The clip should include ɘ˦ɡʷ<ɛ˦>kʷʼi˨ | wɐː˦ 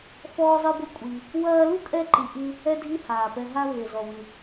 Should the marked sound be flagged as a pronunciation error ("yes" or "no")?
yes